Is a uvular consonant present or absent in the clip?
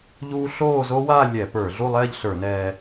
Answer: absent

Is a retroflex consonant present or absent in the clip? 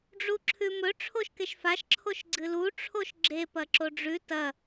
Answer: present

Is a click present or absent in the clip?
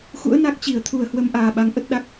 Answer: absent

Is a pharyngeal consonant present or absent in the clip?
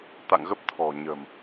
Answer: absent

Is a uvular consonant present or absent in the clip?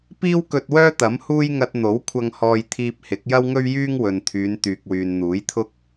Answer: absent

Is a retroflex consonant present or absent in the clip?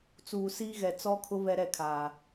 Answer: absent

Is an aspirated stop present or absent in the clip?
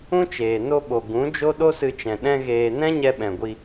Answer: absent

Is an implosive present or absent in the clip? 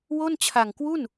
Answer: absent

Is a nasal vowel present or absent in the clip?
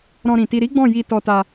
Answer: present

